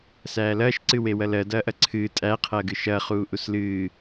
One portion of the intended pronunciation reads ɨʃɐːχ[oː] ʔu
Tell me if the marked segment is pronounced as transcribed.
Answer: no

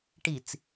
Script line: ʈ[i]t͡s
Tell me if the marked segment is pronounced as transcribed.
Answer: yes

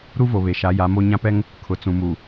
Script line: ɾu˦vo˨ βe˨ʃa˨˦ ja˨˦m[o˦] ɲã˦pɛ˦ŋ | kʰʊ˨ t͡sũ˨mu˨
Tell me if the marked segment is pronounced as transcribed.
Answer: yes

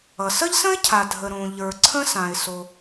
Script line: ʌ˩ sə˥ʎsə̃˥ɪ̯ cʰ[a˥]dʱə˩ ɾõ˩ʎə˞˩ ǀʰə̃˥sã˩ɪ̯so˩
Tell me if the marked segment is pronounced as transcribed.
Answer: no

